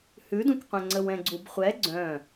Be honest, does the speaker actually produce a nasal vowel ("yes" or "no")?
yes